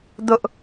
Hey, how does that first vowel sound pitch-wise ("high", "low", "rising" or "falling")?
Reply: high